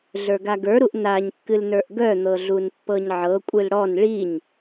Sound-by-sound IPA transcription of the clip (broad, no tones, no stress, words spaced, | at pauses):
ɮə˞ɡaɡə˞ɾuʔ naɲkːɨlnə˞ʔ ɡœn̪ɤɮun pːɤɲʕɤ kʷʼɨlɽɔn ɭiɲ